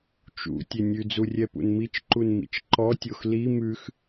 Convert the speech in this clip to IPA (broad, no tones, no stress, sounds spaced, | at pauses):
t͡ʃ ṵ tʲ e nʲ ʉ d͡z u rʲ ɛ p ṵ n m i t͡ʃ ǃ u n m ḭ t͡ʃ ǃ ɔ tʲ o x l i m ʉ x